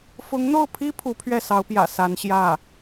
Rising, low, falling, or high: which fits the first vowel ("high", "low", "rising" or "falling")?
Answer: rising